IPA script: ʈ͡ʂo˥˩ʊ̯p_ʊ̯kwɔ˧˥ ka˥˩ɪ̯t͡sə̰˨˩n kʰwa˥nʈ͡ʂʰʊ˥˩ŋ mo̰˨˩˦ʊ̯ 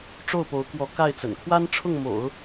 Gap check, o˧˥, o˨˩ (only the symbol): o˧˥